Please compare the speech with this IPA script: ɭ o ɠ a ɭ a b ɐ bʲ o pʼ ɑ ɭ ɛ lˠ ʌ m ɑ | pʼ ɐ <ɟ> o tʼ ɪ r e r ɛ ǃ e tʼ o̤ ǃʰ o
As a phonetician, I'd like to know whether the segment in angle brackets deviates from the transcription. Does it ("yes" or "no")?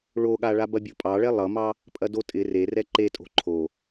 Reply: yes